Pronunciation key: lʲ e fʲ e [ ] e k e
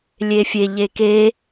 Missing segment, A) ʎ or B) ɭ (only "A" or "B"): A